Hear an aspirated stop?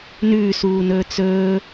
no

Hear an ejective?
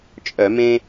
yes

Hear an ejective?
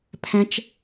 no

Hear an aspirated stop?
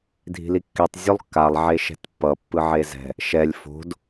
no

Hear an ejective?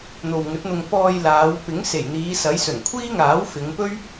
no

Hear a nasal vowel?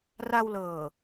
no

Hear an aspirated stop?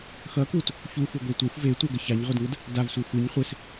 no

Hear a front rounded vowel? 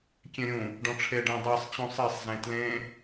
no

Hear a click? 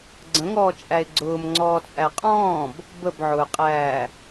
yes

